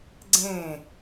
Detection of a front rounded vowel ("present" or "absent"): absent